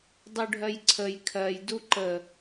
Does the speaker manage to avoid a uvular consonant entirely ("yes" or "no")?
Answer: yes